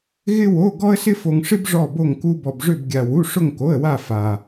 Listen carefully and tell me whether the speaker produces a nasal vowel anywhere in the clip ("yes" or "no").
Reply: no